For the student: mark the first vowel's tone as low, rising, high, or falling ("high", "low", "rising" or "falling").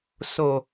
low